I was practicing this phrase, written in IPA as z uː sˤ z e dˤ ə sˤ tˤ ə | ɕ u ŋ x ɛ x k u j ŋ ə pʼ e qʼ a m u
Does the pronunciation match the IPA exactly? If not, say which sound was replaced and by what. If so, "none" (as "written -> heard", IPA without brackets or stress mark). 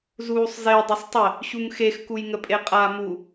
ɛ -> e